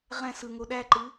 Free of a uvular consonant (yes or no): no